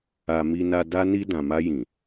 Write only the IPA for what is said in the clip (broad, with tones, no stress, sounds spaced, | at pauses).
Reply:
a˨ m i˨ n a˨ d a˧ n i˧ d ã˨ m a˧ j ĩ˨